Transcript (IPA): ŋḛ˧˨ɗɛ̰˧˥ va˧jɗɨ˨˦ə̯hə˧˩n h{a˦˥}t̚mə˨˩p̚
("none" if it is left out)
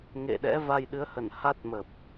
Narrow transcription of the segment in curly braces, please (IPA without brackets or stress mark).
a˦˥